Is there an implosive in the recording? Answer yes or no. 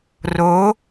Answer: no